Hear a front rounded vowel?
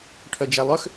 yes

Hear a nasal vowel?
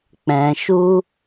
yes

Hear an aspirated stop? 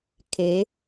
yes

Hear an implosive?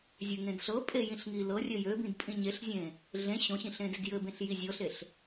no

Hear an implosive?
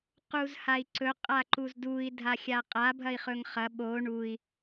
yes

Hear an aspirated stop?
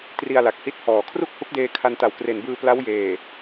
yes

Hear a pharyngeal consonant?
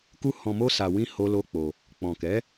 no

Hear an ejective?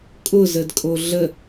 yes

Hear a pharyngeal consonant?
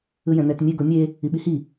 no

